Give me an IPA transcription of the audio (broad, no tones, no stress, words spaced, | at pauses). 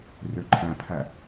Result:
røǃʰæ̃pʰæ